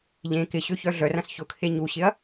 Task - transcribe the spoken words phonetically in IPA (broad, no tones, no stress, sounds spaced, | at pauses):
ʎ ẽ k ɪ ɕ ø ç œ ɮ œ r ɐ̃ s ç ʊ kʰ e ɲ u ɕ ɪ ɐ̯